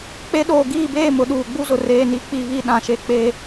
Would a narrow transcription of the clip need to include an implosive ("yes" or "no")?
yes